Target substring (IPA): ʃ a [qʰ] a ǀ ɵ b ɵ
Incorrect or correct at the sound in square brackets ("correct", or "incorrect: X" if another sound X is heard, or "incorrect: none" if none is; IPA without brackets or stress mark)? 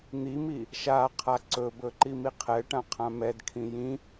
correct